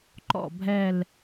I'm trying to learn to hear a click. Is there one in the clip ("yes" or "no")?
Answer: yes